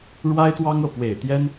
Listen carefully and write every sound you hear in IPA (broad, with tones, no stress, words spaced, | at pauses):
ɻwa˥ɪ̯t̪wɑ˥ŋɤ˥˩ pwe˨˩ɪ̯t̪jɛ˥n